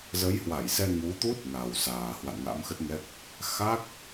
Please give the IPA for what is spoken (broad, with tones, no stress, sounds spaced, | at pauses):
z ə˨˦ j h w a˧˩ j s ɛ˧ ŋ u˨˦ t̪ u˦˥ t̚ ŋ a˨˩ w s aː˨˩ h w a̰˧˨ n ŋ a̰˧˥ m x ə˦˥ t̚ ŋ ɛ˦˥ k̚ | x a˦˥ k̚